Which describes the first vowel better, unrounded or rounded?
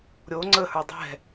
rounded